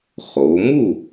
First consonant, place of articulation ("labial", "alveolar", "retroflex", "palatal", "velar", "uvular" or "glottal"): uvular